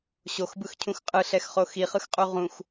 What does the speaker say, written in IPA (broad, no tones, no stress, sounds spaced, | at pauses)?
ɕ o x b ɯ x cʰ ũ x qʼ ɯ ɬ ɛ x χ o x i χ ɯ x qʼ u ʁ ũ x